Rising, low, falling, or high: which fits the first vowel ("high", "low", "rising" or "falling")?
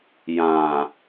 low